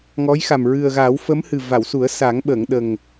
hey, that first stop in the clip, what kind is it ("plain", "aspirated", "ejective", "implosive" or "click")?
implosive